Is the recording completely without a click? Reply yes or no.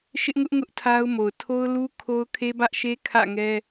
yes